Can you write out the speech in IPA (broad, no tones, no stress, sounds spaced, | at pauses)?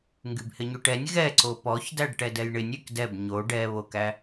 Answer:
ŋ ɡ y b h ɪ ɲ y ʈ ɛ nʲ ɣ ɛ ǀ o p ɔ ç d æ ɖ ʈ ɛ d ɛ j ɳ ɪ nʲ y k d ɛ b ɲ o ɖ ɛ β o k æ